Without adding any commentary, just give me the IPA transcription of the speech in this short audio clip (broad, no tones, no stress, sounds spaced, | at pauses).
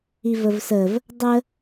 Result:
i v ə v s ə v | dˤ ə